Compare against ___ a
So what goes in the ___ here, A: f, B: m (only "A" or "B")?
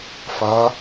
A